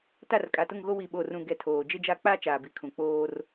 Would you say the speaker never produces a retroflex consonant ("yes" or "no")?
yes